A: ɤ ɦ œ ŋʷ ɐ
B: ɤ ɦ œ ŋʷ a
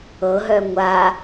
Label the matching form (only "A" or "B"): B